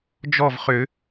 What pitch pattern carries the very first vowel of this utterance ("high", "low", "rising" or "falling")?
falling